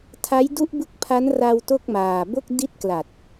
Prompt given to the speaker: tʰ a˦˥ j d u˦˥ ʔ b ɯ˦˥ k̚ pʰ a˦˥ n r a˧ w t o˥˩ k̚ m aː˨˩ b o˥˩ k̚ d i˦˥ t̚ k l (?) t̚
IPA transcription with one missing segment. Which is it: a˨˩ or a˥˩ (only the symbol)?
a˨˩